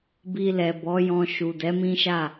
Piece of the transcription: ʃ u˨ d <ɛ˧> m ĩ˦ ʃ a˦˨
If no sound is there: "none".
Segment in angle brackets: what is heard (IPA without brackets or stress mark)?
ɛ˨˦